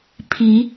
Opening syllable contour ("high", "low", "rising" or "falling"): rising